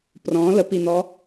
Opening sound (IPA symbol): p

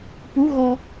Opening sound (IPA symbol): p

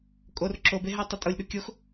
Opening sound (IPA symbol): kʼ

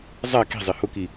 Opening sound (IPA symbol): zˤ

